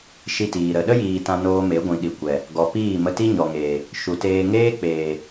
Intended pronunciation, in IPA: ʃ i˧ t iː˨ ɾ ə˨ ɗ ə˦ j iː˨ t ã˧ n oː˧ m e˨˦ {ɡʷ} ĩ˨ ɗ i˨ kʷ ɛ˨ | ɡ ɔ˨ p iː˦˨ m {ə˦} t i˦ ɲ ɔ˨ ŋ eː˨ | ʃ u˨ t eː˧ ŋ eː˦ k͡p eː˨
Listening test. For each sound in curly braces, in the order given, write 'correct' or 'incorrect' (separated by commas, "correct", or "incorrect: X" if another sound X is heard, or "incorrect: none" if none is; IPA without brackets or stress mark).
correct, incorrect: ə˧